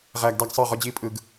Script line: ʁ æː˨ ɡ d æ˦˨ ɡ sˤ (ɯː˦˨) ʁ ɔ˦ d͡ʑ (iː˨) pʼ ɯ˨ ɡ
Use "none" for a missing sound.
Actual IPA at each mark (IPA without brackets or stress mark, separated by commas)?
ɯː˦˨, iː˦